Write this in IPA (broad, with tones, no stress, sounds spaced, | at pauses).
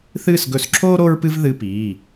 θ ɨː˦˨ s ɡ ɵ˧˩˧ s ǁʰ oː˥ ɾ o˥ ɹ p ɨ˥ v ð ɨ˧˥˧ p iː˩˧˩